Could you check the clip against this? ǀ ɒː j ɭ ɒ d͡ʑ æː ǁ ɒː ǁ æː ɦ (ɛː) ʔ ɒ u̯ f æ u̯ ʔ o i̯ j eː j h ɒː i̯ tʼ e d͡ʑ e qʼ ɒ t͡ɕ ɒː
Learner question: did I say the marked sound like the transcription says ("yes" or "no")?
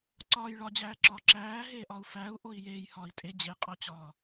no